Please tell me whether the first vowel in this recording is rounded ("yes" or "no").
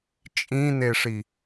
no